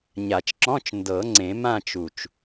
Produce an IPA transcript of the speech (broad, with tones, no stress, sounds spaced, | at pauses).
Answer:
ɲ a˨˩˦ t͡ʃ ǁ ɔ̃˧˥˧ t͡ʃ n d ɤ˨˩˦ ŋ͡ǀ ẽ˨˩˦ m ã˦˨ t͡ʃ u˨˩ t͡ʃ